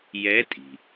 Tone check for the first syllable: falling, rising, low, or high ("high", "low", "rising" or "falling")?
rising